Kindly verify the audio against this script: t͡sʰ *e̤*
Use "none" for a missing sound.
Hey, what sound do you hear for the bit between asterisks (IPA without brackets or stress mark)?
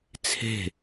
e̤